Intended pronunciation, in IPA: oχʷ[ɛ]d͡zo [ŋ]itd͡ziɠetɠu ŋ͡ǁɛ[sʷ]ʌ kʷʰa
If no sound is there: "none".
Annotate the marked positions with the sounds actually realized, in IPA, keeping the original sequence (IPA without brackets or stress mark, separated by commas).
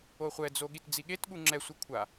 ɛ, ɠ, sʷ